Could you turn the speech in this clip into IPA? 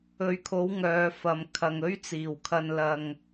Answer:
ɵ˨ɥkʰo˨˥w ŋœː˨˧fɐ˨m kʰɐ˨ŋɵ˥ɥt͡siː˨˩wkʰɐ˧n lɐ˧ŋ

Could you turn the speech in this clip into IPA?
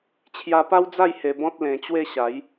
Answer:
t͡ɕʰja˧pa˦wd͡za˥˧j he˧bɔ̃˦t̚ lẽ˧t͡ɕwe˥˧ ɕa˨˦j

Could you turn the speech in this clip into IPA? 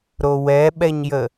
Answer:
ɾowɛɓɛɲjə

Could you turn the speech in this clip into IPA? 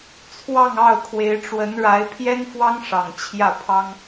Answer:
t͡sʰwɑ˥˧ŋ ɑ˥˩ʊ̯kʰwe˧˥ɪ̯ ʈ͡ʂwə˧˥nɻa˧˥ɪ̯ pʰjɛ˥nfwɑ˥ŋʂɑ˨˩ŋ t͡ɕʰjä˥˩pʰɑ˥ŋ

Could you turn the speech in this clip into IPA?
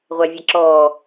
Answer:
ʁʷævʲaǁɔː

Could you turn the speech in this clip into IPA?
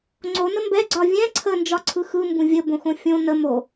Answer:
ŋ͡ǀonə mbɛ ɡ͡ǀɒvʲɛ̃ ǀʰənd͡ʒɒ ǀʰɯxɯ mbũvʲə bõxõfʲõ nə mo

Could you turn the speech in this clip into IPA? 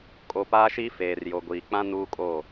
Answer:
kʼo˨paː˦ ʃiː˦ feː˨rjo˨ɡʷiː˨k͡pã˦ nuː˦kʼoː˦˨

